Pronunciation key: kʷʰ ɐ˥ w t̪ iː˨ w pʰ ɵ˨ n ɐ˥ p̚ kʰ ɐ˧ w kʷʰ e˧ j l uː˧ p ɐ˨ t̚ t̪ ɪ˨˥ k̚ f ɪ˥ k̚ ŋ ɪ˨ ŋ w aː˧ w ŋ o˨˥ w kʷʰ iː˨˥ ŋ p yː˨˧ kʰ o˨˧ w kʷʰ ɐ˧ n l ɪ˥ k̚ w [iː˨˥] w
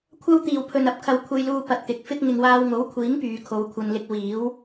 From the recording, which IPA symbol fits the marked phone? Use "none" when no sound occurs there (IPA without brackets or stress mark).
iː˨˥